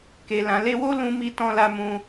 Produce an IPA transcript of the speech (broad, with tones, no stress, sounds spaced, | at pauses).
k e˨ l ã˨ l e˧ w o˦ l ũ˦ m i˦ t ɔ̃˦ l a˦ m ũ˧